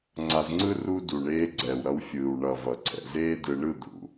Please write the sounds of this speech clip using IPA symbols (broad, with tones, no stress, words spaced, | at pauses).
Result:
ŋ͡ǀa˧zŋ͡ǀɯ˦ ru˦ du˨ɳeː˧ ɡ͡ǀɛː˨wɾʌ˧wfʲɯː˨w ɳʌ˨ vʌ˨ǀʰɛ̰˨zeː˦dɯ˧ ɳɯ˦˨d̪ṵ˨